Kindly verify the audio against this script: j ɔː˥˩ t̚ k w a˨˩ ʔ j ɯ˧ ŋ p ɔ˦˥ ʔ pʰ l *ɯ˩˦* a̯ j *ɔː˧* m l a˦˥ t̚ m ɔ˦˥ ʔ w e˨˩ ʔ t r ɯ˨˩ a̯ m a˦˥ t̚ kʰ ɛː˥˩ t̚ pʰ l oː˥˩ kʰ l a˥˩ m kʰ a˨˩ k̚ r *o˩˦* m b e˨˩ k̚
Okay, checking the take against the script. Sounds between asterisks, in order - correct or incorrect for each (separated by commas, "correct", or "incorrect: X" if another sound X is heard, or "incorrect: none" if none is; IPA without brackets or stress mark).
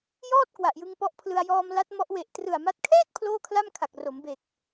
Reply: incorrect: ɯ˧, correct, correct